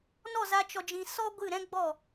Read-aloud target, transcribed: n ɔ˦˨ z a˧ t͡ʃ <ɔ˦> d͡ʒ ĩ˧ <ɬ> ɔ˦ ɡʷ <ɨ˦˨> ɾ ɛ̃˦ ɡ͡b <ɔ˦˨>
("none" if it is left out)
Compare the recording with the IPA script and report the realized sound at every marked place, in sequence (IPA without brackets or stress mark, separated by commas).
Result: ɔ˧, s, ɨ˦˨, ɔ˦˨